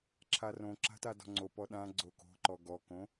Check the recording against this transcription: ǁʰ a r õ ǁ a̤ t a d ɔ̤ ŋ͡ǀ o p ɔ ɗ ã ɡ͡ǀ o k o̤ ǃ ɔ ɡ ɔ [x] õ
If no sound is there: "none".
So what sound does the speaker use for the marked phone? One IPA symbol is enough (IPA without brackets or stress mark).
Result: k